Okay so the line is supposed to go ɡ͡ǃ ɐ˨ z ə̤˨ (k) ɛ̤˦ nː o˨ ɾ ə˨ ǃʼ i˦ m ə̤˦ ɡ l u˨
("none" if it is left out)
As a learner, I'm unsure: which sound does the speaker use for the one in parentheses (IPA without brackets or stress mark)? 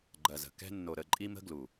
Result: k